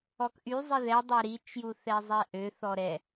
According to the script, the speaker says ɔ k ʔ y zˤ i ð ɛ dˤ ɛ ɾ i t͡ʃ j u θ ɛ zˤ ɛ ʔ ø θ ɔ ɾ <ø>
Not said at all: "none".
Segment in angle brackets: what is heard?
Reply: ɛ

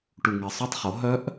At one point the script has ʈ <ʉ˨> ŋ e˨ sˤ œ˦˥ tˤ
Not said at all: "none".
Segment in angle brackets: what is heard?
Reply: u˨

